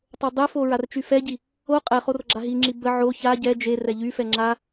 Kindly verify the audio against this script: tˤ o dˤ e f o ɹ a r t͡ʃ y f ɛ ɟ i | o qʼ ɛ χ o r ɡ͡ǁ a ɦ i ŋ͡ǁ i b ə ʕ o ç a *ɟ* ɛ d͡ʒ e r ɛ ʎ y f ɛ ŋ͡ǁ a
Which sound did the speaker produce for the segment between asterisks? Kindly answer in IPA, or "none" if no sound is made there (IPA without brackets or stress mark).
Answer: ɟ